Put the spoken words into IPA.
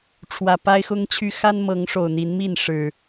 ʈ͡ʂʰ w ä˨˩ p a˦ ɪ̯ x ʊ˦ ŋ t͡ɕʰ y˦ x a˦ n m ɤ˨˦ ŋ ʂ o˨˩ ʊ̯ n̪ i˨˦ n m i˥˨ n ʂ ɻ̩˨˩

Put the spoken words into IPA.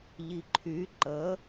ʎ i ǃʰ y ǃ ə

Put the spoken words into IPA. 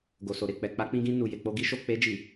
ɡ o˨ s o˨ ɾ e˨ k͡p ɛ˨ k͡p a˧ k͡p ĩ˧ ɡ ĩ˧ n u˨ j e˨ k͡p o˧ ɡ i˧ ʃ o˨ k͡p e˧ d͡ʒ i˨

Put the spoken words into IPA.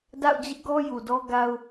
d a̰˦˨ ʊ̯ d͡ʑ ɪ˦ ʔ ɡ ɔ˦ j u˨ d ɔ˦ ɡ a˦ ʊ̯

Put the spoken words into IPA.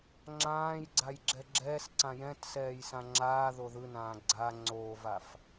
ŋ͡ǁ ãː j ɡ͡ǀ a j ɡ͡ǁ ɛ ɡ͡ǁ ɛː s ǀ ã j ɛ̃ t s ɛː j s ã ŋ͡ǁ aː ð o ð ɯ n ãː ɡ͡ǀ a ŋ͡ǀ oː v a f

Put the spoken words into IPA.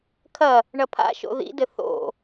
kʰ ɐ | ɳ ɐ pʰ a̰ ʃ o̰ ð ḭ d ɘ θ o̰

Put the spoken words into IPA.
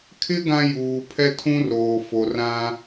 kʰ ɪ˦ ɡ ã˦ j uː˨ pʰ ɛ˦ tʰ ũ˦ r oː˨ f o˨ r ã˦

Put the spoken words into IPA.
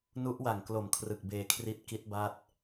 n u˦˥ ʔ w a˨˩ ŋ k l o˨˩ m kʰ r ɯ˨˩ k̚ b eː˧ kʰ r i˦˥ t̚ k i˦˥ t̚ b a˦˥ t̚

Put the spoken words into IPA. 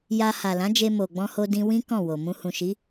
j a˧ h a˨ l ã˨˦ d͡ʒ e˧ m o˨ ɡ͡b ɔ̃˧ h o˧ d ĩ˧ w ĩ˦ k ɔ̃˦˨ w o˨ m ũ˧ h ũ˨ ʃ i˨˦

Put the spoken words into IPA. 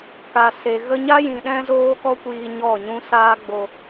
k a˨ s e˨ ɣ ə˦ ɲ a˦ j ĩ˨ ɗ ɛ̃˦ z oː˦ k ɔ˦ kʷ iː˧ ɲ ɔ˦˨ ɲ ũ˦ s aː˦ ɡ͡b o˧

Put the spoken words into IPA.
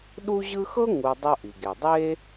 ɗ u˥ ʑ ɯ˦ x ɤ˥ ŋ u˨ dˤ o˦ ʔ i˩ ɡ e˩ dˤ e˦

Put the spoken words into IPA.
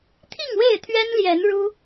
t̪ʰ i˥˨ ŋ w e˥˨ ɪ̯ t̪ʰ ɥ ɛ˦ n l j ɛ˨˦ n ɻ u˦

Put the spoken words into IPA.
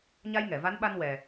ɲ a˧ j ŋ ɛ˨˩˨ v a˧˥ n ɓ a˧ n w ɛ˨˩

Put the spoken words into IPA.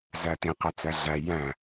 z æ t ĩ q æ t͡s æ ɮ æ j æ̃

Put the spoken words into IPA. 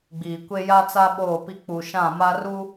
ɡ͡b iː˨ kʷ e˦ j a˦ t͡s a˦ ɓ oː˦˨ p i˦ k͡p u˨ ʃ ã˦˨ m a˦ r u˦

